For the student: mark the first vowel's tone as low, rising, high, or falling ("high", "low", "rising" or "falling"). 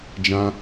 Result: high